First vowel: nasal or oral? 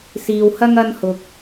oral